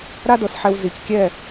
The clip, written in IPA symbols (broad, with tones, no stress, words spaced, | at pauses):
ɾa˥dɤ˩sħɛ˧w zi˩ckʲɛ˥˩